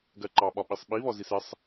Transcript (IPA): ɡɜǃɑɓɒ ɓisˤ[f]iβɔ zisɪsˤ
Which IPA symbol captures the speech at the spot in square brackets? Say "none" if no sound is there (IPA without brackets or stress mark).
ɓ